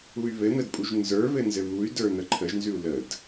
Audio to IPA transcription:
uy̯βɘn̪əd pʼuʒnzə˞βɘ nzɘβuy̯də˞ n̪əǃʰəʒnzʉu̯ ləd

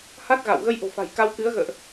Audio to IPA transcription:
ha˦˥t̚ ɣa̰˧˨w ɣə˧jʔo̤˨˩fa̤˨˩j ka˧wkɨ˨˦ə̯ ɣə̰ː˧˨ʔ

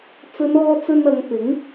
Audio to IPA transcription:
t͡sɵ˨˧nɔː˧ t͡sɵ˧nɐ˨˧ŋ pɪ˨˥ŋ

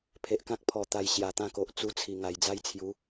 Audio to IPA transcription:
pʰe˨ʔkã˦k̚pʰɔ˨˩ t̪a˨˩j ɕja˨˩t̪ã˥˧ko˨ʔ t͡su˧t͡sʰi˨˩ ŋa˨˩jd͡za˥˧jt͡sʰju˨˦

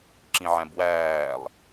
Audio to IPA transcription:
ǁĩʕæ̃bwæːlˠ

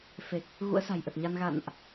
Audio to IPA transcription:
fe˨˩k̚ | ɣṵ˧˥ə̯sa̤˨˩jʔə˨˩t̚ɲa˧n ɣa̰˧˨nʔ

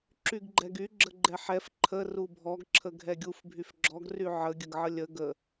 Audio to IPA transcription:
ǁyɡɡ͡ǃɛɡy ɡ͡ǁəɡ͡ǃɛħɛf ǃʰə rubʱɔɡ ǁʰəɡʱɛɡʲuf bʱyfɡ͡ǁɔɡ ryʕə ɡʲəɡʕəlʲə ɡə

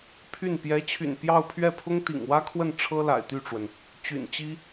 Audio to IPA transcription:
pʰy˥˩n pjɛ˧˥t͡ɕʰy̰˨˩n pjɑ˥˧ʊ̯pʰɥɛ˥˩pʰʊ˥ŋ t̪ḭ˨˩ŋwä˥kʰwə˥˩n ʈ͡ʂʰɤ˥la̰˨˩ɪ̯t̪y˥˩ʈ͡ʂwə˩n | t͡ɕy̰˨˩nt͡ɕi˥

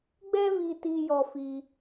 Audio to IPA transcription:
ɡ͡bɛ˦vi˧ti˧ jɔ˧fi˧

